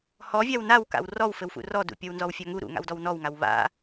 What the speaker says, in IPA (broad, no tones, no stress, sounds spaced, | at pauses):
h ɔ vʲ a w n a w k a̰ w r ɔ w f ɘ w f ṵ r ɔ d ṵ pʲ ɔ w n z ɔ w fʲ a ŋ u ɾ ṵ ŋ a̰ w d ɔ w n ɔ w ŋ a w β a̰